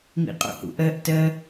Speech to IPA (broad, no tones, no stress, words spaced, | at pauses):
mḭqʼo̰hṵʔɜʔ tɜ